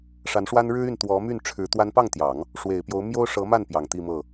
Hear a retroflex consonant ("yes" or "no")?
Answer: yes